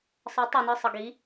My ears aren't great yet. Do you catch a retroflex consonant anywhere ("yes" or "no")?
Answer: no